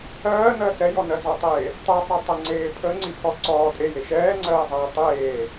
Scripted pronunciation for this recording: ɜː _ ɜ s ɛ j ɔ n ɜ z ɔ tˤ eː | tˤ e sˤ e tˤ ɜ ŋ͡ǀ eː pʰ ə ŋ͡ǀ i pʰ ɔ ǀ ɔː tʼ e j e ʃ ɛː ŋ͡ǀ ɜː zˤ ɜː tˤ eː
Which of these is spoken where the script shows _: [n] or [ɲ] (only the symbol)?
n